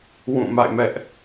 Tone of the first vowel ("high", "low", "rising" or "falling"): falling